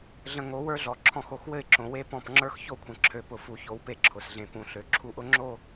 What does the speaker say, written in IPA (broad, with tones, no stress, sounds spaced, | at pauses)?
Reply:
ɮ ə̃˨ ŋ o˨˦ w ə˞˦ ɮ ɔ˨ ǁʰ ɔ̃˦˨ x o˦˨ x w ɘ˦˨ ɪ̯ ǁ õ˨ w e˦ p ɔ̃˦˨ p ŋ͡ǁ ə˞˦ x ç o˦ kʷʰ ə̃˨ ǁʰ ø˨ p ʊ˨ f u˨ ç o˨ w p e˦ ǁʰ ʊ˨ s ɮ ẽ˨ p ũ˨ ɬ ø˨ ǁʰ u˦ ʔ ʊ˦ ŋ͡ǁ o˦˨